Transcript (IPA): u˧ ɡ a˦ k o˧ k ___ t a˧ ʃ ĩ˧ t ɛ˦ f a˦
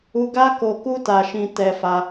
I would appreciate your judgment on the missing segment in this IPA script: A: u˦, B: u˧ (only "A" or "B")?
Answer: A